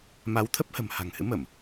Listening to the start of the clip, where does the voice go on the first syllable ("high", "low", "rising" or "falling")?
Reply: rising